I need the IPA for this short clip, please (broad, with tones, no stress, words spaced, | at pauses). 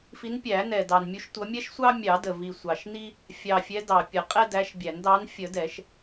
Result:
fi˨˦npʲæ˨˩˦nɛ˨˩ dɑ˨˩n mʲu˨˦ʃ tʷʌ˨˦ mʲɛ˦ʃsʷɑ˦ mʲɑ˨˩˦də˨˩ vi˨˩sʷɑ˨˩ʃ ni˦ | fʲɑ˨˩fʲɛ˨˦ dɑ˨˩pʲə˨˩˦ qʼɛ˦dæ˨˦ʃbʲæ˨˩˦n dɑ˨˦nfʲə˨˩˦ dɛ˨˩˦ʃ